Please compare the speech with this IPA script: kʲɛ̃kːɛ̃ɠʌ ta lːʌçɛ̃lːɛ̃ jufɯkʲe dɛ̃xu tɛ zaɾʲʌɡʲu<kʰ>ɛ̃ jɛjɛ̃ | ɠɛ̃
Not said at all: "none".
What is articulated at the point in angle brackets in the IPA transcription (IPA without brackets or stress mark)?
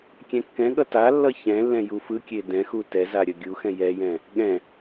x